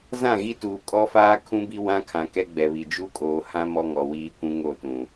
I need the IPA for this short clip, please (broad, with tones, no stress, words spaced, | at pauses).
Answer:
zã˦˨ɣi˦tuː˨ kʼɔ˦faː˦ kʰũ˦bi˦ wã˦kʰã˨ kɛ˦ɡ͡bɛ˨βi˨ d͡ʒu˦kʼoː˨ hã˦ mɔ˦ŋɔ˨wiː˦kʷũ˦ ŋo˦˨tũ˨